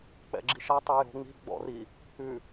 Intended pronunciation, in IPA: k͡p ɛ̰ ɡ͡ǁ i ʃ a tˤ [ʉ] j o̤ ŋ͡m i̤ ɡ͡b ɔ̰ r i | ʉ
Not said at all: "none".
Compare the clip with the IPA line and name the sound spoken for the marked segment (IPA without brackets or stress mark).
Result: ʉ